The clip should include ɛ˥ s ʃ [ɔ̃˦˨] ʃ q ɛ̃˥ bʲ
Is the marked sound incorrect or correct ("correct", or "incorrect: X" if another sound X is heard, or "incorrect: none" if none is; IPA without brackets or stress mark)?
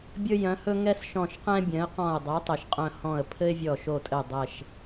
correct